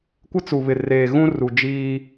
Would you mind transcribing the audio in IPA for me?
kʷ ɪ˦ t͡s u˨ β ɪ˨ r eː˨ ɣ ũ˦ r u˨ d͡ʒ iː˦

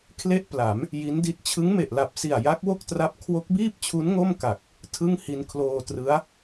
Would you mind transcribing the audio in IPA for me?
kʰ l e˥˩ ʔ p l a˩˦ m | j i˦˥ n d i˦˥ t̚ t͡ɕʰ ɯ˦˥ ŋ m e˨˩ ʔ l a˨˩ p̚ s i˨˩ a̯ j a˦˥ k̚ w o˥˩ k̚ t r a˦˥ p̚ kʰ w o˦˥ k̚ b iː˥˩ p̚ t͡ɕʰ u˦˥ n ŋ o˥˩ m k a˨˩ k̚ | tʰ ɯ˥˩ ŋ h i˧ n kʰ l oː˧ t r ɯ˦˥ a̯

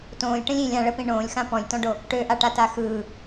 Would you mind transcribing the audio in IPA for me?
t õː lʲ ʈ ə̃ lʲ ĩ lʲ ã ɭ ə p ĩ ɳ õː lʲ x ã p ɔ̃ lʲ t ɔ̃ ɖ o | ʈ ø ʔ a ʈ a t a x ɯː

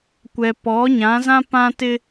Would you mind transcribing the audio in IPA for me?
kʷ ɛ˨ p ɔ˨˦ ɲ ã˨˦ z ã˦ p ã˦ t ɪ˦

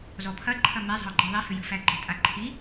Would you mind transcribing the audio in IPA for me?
z ɔ pʰ ɐ ǃʰ ɐ m e zˤ ə̤ ʊ̯ ɡ͡ǃ æ ðˤ e h ʏ j ə̤ f æ ɡ͡ǃ ə̤ tʼ a ǃʰ i

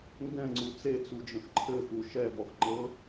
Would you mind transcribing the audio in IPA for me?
ŋ ɡ ɛ̃ ŋ͡ǀ u t͡s e t͡s u d͡ʒ ə̃ x ǃʰ ɘ x u ʃ ɛ v ɔ x ŋ͡ǃ ɤ

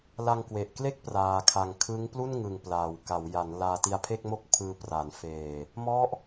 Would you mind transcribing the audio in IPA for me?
l a˧ ŋ k w e˨˩ ʔ k l e˥˩ k̚ p r aː˧ kʰ a˧ ŋ kʰ ɯ˦˥ ŋ p l u˥˩ n ŋ ɯ˨˩ ŋ p l a˨˩ w k a˩˦ w j a˩˦ n l aː˧ t i˧ a̯ pʰ e˥˩ k̚ m o˥˩ k̚ pʰ ɯː˧ p r a˩˦ n f eː˨˩ | m ɔ˦˥ ʔ

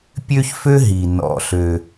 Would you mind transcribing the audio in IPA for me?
pʲ ø˥ ç f ø˥ ɦ i˩ n ɔ̰˩ ɬ ø˩

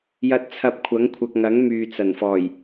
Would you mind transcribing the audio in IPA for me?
j ɐ˧ t̚ t͡sʰ ɐ˧ p̚ kʷʰ ɐ˨˥ ŋ kʷʰ ɐ˨ k̚ ŋ ɐ˨˥ ŋ m yː˨ t͡s ɐ˨˩ n f ɔː˨˩ j

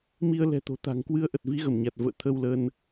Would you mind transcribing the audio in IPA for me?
m i˧ ə̯ l ɛ̤˨˩ t̪ o̤˨˩ t̪ a̤˨˩ ŋ k w ɨ˧ ə̯ ʔ ə˨˩ t̚ v i˨˦ ɣ ə˧˩ m ɲ a˨˩ t̚ v ə̰ː˧˨ t̪ʰ ə˧ w l əː˧ n

